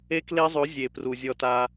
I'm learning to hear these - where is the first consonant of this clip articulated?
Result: velum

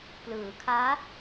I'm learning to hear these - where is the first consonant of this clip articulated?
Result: velum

